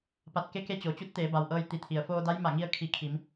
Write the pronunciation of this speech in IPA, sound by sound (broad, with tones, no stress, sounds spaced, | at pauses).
p a˧˩ t̚ k e˧˥ k e˧˥ t͡ɕ o˩ t͡ɕ u˧˥ t̚ t̪ eː˩˧ b a˩ w ʔ ɤː˧ j t̪ i˩˧ t̪ʰ i˩ ə̯ f oː˧ d a˧˥ j m a˧˩ ŋ i˧ ə̯ kʰ i˧˩ kʰ i˩˧ m